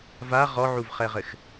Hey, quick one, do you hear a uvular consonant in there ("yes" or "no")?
yes